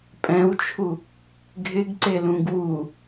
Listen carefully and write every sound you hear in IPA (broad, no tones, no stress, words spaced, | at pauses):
pʼɛ̃wt͡ʃʰu | ɡʱɪɡǀelũɡ wu